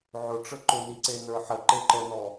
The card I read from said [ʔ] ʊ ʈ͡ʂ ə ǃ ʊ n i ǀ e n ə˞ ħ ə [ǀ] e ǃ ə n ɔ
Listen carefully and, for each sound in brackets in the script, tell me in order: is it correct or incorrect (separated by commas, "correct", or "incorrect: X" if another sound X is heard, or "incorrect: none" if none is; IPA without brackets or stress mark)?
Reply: incorrect: ʕ, incorrect: ǃ